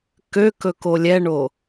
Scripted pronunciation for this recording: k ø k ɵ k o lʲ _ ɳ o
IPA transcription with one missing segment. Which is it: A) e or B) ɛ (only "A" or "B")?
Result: B